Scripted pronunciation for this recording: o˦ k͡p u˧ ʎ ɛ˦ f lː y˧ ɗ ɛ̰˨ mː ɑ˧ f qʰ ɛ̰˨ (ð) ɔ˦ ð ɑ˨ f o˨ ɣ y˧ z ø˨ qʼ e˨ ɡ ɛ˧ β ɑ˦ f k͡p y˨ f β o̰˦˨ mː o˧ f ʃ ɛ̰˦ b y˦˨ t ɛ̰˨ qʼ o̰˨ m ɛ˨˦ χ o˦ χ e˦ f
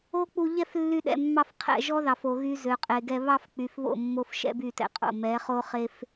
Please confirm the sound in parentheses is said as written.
no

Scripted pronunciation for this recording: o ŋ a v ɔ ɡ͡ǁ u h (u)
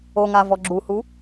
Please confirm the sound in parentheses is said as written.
yes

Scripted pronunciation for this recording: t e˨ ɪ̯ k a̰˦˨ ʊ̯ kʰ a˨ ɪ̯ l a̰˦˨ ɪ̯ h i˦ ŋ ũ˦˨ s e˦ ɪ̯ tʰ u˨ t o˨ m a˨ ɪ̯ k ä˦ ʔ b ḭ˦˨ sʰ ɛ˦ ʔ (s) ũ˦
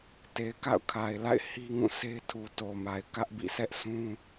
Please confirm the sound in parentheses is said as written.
yes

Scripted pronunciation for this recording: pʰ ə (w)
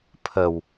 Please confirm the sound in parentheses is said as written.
yes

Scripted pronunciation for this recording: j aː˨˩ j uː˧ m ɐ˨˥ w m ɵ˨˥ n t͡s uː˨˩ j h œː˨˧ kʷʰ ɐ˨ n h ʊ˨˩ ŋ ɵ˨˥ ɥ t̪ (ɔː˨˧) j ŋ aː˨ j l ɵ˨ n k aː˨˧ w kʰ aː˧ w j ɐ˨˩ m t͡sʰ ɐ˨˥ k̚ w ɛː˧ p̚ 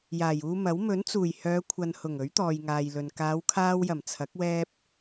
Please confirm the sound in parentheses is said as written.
no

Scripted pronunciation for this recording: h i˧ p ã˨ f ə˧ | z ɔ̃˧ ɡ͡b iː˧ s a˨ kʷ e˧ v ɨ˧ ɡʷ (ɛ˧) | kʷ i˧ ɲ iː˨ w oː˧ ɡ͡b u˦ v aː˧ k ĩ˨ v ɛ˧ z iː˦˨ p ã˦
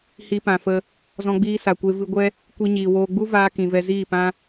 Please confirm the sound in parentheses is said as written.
no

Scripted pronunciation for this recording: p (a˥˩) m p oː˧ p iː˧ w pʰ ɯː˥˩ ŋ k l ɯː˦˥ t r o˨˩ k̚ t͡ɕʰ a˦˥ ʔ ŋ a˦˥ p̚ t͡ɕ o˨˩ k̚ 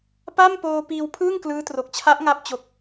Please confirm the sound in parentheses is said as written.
yes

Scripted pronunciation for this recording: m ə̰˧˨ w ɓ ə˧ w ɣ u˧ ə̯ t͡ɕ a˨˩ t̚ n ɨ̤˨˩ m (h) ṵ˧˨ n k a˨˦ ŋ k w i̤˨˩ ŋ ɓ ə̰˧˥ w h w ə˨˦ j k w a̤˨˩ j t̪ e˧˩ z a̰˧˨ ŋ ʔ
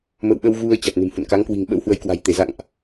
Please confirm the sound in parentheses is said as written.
yes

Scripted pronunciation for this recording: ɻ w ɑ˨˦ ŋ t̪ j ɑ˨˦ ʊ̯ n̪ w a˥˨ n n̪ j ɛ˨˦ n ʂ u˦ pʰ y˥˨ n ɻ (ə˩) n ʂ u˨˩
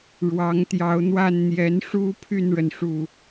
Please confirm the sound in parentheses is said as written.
yes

